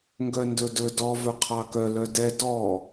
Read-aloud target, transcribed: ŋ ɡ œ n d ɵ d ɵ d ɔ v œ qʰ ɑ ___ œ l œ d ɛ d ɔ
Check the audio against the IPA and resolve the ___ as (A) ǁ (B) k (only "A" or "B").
B